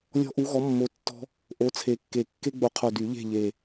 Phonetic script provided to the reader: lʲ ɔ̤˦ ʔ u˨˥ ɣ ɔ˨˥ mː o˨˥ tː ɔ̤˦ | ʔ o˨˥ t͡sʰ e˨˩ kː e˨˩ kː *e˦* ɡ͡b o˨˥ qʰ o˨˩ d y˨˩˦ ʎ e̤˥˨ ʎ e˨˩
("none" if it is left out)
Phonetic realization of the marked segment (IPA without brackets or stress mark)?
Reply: e˦